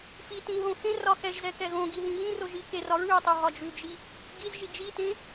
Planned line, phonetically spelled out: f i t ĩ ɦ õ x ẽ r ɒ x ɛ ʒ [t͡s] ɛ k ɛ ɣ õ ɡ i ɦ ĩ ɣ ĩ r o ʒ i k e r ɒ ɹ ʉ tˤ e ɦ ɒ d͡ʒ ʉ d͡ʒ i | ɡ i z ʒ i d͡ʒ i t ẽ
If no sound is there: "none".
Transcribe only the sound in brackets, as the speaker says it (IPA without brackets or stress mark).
z